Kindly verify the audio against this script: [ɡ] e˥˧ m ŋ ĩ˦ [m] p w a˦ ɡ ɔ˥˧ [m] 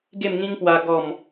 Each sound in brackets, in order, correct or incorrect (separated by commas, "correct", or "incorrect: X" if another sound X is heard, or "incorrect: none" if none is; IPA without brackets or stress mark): correct, incorrect: ŋ, correct